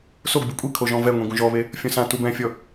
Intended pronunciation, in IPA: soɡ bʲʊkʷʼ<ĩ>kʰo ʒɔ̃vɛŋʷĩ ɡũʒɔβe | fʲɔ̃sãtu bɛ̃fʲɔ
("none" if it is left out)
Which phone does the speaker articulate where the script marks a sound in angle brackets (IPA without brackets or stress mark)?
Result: i